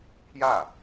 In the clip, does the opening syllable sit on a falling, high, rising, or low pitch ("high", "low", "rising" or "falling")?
falling